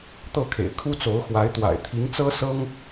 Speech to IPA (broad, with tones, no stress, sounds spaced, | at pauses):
t̪ ɤ˥˩ kʰ ḛ˨˩ ɪ̯ kʰ u˥ t͡s o˧˥ ʊ̯ x w a˧˥ ɪ̯ t̪ w a̰˨˩ ɪ̯ t̪ʰ i˧˥ ŋ t͡s ɤ˥ s ɤ˥ ŋ